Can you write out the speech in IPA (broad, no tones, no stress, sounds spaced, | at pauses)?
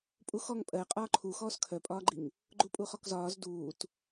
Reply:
pʼ u x ɔ ŋ pʼ ɜ qʼ ɒː ǃʰ u x ɔː s kʰ œ pʼ ɒː ɡ͡ǃ i ŋ | ɡ͡ǃ u pʼ u χ ɔ k z ɒː z d uː t